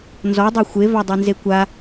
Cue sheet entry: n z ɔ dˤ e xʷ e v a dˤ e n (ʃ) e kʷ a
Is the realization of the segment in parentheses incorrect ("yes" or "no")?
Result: yes